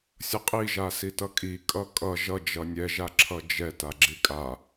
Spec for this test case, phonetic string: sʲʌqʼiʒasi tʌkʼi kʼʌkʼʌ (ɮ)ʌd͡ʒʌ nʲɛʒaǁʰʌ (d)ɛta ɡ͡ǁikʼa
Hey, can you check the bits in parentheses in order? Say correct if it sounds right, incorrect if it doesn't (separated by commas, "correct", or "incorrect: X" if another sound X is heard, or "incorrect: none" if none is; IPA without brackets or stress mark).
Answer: incorrect: ʒ, incorrect: d͡ʒ